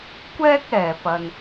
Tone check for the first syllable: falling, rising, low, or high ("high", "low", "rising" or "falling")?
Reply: high